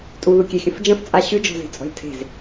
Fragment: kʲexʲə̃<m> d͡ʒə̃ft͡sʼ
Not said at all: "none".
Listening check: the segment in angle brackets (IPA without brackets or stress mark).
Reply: f